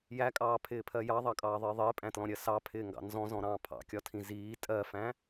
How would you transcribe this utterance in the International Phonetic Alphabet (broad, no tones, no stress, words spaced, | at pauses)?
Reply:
jækʼɑːpʰɪːpʰɜ jɑðˤɑkʼɑːðˤɪː ðˤɪːpʼæ̃tlɔ̃ɾʲɜ sɑpʰɪːŋɡɑ̰ nzɔ̃zɔ̃ɾɑ̃ː pʰɑ̰kʲɒtʰĩ ziː tʼɜfæ̃